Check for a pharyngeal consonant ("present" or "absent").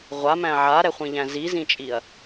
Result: present